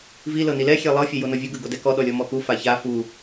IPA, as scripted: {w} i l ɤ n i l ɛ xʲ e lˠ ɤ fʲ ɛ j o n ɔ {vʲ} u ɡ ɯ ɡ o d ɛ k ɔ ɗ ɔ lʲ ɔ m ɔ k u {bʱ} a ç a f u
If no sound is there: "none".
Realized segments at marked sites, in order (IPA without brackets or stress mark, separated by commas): v, vʲ, f